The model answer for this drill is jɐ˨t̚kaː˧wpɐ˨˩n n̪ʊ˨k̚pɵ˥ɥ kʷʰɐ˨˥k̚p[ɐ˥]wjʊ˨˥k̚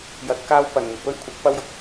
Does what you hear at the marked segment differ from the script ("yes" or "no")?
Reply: no